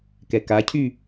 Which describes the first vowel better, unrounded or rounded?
unrounded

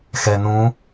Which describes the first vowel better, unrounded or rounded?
unrounded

